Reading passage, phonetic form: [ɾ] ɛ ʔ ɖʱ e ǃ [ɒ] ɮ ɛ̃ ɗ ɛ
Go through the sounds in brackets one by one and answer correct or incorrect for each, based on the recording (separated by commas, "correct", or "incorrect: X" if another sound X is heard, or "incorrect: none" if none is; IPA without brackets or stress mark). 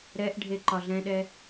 correct, correct